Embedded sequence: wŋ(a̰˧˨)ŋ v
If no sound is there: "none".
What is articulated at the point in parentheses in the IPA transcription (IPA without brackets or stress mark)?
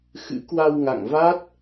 a̰˧˨